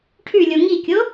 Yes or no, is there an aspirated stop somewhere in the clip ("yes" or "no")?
yes